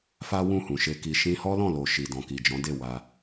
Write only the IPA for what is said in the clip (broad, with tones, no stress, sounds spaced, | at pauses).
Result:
f a˦ w ũ˦˨ h ũ˨ ʃ e˧ k i˨ ʃ ĩ˧ h ɔ˦ l ɔ̃˦˨ l o˨ ʃ i˨ d ɔ̃˨ k i˨ d͡ʒ ɔ̃˨˦ d e˦˨ w a˧